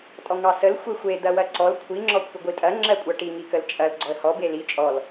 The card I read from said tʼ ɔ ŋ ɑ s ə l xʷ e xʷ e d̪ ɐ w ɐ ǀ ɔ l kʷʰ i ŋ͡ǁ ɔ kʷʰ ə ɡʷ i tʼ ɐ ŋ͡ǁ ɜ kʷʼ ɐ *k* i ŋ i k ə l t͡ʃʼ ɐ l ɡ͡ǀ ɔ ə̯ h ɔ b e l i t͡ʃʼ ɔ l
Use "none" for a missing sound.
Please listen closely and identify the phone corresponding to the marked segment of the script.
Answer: ʈ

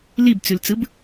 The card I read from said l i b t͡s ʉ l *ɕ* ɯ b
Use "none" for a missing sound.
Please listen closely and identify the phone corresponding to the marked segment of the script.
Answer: t͡s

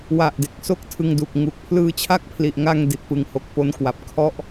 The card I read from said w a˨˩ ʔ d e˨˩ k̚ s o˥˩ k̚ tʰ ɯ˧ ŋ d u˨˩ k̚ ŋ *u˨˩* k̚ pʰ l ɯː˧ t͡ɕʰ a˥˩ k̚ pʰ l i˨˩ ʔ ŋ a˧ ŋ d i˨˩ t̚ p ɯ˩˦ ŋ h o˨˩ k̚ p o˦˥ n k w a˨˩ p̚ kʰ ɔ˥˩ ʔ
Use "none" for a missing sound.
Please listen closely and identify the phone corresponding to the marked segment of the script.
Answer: u˨˩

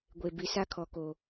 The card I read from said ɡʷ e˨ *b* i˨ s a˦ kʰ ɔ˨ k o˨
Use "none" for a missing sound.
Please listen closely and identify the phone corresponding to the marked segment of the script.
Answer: b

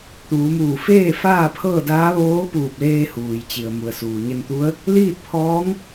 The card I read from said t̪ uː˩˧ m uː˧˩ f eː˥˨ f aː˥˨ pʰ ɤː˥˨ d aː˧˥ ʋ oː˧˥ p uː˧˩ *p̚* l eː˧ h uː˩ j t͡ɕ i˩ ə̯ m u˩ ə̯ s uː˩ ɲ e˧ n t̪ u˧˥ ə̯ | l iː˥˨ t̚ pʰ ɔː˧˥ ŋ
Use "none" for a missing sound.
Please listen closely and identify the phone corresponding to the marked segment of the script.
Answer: p̚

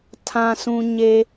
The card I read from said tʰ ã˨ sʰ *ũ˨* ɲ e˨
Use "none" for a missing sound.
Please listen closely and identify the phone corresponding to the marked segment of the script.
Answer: ũ˨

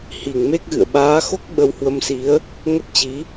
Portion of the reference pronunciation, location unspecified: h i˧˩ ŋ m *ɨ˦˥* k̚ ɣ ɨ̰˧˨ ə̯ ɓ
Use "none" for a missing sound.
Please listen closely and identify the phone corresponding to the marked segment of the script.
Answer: e˦˥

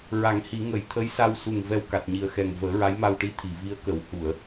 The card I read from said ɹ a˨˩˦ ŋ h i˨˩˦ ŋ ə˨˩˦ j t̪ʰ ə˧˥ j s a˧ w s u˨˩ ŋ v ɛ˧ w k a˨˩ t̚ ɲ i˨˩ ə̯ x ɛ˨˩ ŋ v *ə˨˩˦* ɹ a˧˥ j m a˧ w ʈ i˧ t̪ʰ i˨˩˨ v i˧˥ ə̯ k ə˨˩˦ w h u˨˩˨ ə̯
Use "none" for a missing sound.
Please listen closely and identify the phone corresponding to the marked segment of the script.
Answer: əː˨˩˦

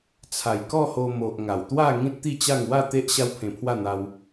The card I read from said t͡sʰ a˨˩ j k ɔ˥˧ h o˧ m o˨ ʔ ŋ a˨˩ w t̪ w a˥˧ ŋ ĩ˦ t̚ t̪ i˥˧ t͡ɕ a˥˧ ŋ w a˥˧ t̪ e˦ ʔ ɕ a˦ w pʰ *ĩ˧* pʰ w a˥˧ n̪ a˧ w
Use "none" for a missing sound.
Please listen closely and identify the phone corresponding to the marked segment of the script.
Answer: ẽ˧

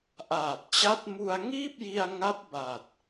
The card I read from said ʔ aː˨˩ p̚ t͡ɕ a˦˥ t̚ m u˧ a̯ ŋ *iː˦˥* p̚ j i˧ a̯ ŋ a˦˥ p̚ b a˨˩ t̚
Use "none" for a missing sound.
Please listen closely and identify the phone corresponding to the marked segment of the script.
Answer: iː˥˩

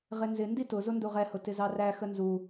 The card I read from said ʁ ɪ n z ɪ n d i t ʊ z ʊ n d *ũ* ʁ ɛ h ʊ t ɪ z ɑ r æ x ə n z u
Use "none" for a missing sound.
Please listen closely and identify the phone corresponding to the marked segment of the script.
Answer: u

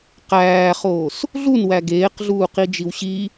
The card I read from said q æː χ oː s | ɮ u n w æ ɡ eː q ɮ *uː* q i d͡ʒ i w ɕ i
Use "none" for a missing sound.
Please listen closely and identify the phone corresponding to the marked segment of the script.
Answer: uː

